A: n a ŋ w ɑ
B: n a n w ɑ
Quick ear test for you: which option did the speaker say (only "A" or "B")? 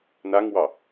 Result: A